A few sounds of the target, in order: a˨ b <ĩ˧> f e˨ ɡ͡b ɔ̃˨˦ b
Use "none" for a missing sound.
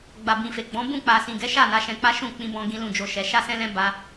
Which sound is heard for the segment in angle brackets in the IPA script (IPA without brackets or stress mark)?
ĩ˨